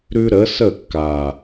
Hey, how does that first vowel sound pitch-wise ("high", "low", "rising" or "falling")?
high